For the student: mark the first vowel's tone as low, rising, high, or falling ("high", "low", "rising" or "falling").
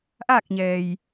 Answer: falling